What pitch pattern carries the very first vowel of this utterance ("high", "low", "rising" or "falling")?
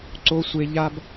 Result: high